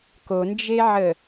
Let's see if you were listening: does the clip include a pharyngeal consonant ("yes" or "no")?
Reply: yes